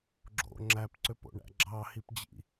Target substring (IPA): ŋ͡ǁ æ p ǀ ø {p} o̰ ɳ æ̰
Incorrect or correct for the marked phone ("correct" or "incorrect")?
correct